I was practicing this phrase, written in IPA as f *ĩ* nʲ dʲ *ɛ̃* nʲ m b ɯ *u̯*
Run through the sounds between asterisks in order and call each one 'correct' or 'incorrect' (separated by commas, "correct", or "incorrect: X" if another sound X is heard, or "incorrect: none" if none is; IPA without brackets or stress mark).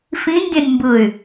correct, correct, incorrect: y̯